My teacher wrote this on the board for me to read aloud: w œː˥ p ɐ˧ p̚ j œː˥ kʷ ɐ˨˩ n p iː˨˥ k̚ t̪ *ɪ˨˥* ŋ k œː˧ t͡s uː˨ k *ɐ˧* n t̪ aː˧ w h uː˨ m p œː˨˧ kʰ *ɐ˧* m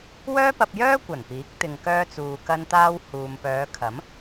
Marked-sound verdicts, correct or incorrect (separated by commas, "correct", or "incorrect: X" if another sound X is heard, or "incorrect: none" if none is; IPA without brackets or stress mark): incorrect: ɪ˨, correct, incorrect: ɐ˨˥